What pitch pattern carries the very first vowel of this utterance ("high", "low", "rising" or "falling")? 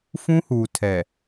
high